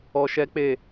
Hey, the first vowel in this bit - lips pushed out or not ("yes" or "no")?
yes